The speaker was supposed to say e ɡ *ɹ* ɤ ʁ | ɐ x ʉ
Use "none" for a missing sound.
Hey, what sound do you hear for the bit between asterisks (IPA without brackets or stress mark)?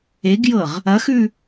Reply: j